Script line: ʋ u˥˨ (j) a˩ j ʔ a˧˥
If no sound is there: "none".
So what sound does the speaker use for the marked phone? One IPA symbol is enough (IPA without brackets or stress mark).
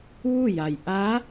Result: j